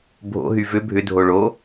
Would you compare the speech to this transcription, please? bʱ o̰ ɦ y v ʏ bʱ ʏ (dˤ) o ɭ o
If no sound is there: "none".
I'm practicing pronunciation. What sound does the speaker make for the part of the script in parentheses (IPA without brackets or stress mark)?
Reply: dʱ